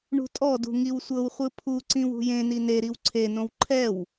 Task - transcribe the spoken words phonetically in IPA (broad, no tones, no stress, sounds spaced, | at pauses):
ɳ ṳ tʼ ɔ d ṳ ŋ i w sʷ ɤ w χʷ ɯ pʰ u ǀ ĩ w ṳ j ẽ n i n e ɾ i w ǀʰ e n õ w ǃʰ ɛ w